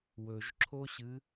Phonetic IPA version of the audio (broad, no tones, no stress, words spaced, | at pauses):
wɵʒǁʰoɕɨ